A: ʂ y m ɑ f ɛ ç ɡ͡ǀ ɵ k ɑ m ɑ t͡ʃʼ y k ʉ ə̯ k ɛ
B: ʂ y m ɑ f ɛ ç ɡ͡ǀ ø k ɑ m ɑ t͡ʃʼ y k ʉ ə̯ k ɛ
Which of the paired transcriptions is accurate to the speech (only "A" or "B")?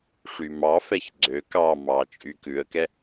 B